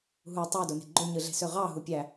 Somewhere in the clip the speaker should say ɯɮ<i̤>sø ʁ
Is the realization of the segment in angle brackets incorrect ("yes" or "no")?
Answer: yes